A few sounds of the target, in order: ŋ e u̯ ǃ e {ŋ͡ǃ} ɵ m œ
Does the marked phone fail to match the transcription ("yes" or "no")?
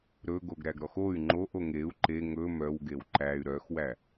yes